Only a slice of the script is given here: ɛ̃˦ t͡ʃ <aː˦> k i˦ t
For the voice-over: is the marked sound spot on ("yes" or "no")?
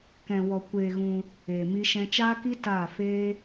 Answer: yes